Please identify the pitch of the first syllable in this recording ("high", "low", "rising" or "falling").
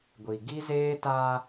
low